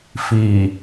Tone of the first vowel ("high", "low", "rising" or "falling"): low